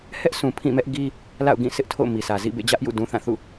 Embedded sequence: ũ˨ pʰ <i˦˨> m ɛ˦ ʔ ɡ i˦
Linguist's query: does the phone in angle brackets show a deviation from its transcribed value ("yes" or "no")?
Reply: yes